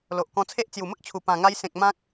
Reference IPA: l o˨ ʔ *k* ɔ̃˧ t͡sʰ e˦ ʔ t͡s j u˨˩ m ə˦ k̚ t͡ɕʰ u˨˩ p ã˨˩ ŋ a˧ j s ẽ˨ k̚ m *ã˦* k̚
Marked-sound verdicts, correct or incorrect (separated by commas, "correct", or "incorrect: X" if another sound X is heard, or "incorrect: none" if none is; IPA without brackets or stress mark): correct, correct